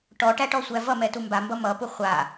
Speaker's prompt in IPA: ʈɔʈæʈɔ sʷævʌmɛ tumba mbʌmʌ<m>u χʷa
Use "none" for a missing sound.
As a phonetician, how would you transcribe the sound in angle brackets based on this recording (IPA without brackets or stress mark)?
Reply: p